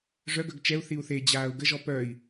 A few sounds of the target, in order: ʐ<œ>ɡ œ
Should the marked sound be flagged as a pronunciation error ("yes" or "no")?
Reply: no